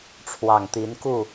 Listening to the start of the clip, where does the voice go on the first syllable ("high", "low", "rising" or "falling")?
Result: low